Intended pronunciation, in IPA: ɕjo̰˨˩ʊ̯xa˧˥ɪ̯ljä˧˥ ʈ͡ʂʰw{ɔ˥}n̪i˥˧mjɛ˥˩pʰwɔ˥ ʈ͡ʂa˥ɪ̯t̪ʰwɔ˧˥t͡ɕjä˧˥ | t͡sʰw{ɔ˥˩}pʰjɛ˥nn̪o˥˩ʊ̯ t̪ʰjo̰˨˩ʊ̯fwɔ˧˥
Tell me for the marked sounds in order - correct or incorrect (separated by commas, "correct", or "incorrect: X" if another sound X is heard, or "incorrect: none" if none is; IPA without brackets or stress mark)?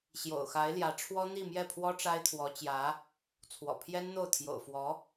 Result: correct, incorrect: ɔ̰˨˩